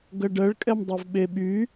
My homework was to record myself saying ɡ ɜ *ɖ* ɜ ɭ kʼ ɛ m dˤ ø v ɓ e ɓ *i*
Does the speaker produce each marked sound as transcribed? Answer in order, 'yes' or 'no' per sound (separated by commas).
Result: yes, no